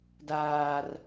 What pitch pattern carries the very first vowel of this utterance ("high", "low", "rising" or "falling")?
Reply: high